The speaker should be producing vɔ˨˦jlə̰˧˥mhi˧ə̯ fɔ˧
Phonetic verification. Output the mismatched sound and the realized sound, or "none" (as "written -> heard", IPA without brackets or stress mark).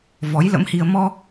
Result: f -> m